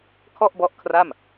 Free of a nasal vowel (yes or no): yes